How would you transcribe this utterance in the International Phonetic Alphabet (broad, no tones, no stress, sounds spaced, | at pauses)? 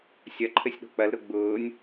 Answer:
sʲ ɐ ǃʰ ɘ sʲ ɗ o̤ k͡p ɐ l ɾ ʊ ɡ͡b ʊː nʲ